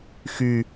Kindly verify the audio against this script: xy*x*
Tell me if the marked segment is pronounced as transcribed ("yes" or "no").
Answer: no